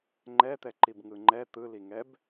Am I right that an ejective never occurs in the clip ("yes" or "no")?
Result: yes